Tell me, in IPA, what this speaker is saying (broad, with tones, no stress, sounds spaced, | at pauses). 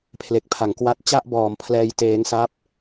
pʰ l e˨˩ k̚ pʰ a˩˦ ŋ k w a˦˥ t̚ t͡ɕ a˥˩ ʔ b ɔː˩˦ m pʰ l ɛː˧ j t eː˧ ŋ s a˦˥ p̚